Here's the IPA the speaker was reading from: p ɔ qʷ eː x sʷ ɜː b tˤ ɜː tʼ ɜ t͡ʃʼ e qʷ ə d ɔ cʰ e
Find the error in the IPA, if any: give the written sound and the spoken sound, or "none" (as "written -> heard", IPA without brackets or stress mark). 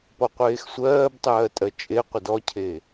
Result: none